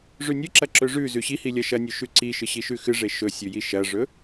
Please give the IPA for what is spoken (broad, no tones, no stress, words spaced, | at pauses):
ʐʉnʲɨǁɐ ǁɵʐʉ zʉɕihi lʲɐʃɐnʲʉ ʃʉǀiʃɨ ɕiʃʉxɨʐe ʃɵsʲʉji ʃɐʐɵ